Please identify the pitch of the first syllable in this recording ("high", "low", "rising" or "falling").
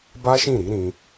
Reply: high